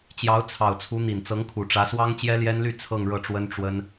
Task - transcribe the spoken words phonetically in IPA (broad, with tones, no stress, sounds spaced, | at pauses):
t͡ɕ j ɑ˧˥ ʊ̯ t͡sʰ ɑ˨˩ ʊ̯ t͡sʰ u˧˥ n̪ i˨˩ n t͡s ɤ˧˥ ŋ kʰ u˨˩ ʈ͡ʂ ä˧˥ s w ɑ˥ ŋ t͡ɕ j ɛ˥ l j ɛ˥ n l y˥˧ t͡sʰ ɤ˥˧ ŋ ɻ ɤ˥˩ ʈ͡ʂ w ə˥ n ʈ͡ʂ w ə˥ n